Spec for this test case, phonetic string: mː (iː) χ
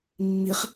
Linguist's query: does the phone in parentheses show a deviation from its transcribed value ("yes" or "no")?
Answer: yes